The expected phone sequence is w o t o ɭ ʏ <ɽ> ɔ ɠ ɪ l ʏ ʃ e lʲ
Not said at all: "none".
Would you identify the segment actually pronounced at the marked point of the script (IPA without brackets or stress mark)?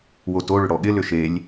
ɽ